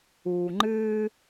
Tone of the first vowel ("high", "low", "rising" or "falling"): low